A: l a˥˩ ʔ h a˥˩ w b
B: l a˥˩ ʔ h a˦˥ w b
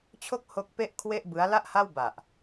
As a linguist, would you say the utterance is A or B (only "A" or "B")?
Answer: A